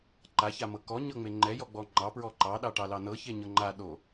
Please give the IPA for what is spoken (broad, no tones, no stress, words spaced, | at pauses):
ǃaçamɤ kɔɲɤŋ͡me ŋ͡ǃɛjɔɡ͡bɔ ŋ͡ǃɑpɹɔ ǃɑɗɑʈɑlɑ nɤçeɲɤ ŋ͡ǃaɗo